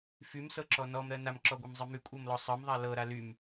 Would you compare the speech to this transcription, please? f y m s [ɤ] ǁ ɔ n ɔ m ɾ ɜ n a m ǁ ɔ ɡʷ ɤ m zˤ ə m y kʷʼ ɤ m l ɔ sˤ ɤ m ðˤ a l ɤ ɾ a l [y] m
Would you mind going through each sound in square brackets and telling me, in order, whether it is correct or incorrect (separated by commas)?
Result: correct, correct